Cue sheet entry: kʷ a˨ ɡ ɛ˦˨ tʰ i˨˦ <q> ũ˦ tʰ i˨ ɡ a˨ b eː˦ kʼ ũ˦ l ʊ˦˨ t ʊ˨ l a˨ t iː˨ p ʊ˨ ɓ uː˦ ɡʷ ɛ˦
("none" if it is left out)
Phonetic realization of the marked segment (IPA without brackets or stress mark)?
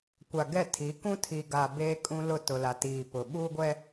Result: k